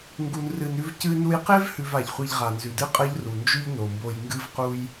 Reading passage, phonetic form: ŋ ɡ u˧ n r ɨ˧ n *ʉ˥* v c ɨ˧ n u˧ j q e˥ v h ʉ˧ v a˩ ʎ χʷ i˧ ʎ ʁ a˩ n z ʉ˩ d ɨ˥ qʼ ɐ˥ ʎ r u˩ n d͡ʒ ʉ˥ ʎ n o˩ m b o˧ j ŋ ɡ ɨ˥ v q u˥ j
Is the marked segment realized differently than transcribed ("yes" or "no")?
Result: no